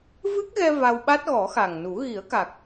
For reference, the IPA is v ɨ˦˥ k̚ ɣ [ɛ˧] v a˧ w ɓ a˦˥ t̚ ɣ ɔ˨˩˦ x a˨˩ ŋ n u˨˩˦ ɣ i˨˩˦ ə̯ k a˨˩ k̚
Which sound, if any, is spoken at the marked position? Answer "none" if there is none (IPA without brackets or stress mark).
ɛ˧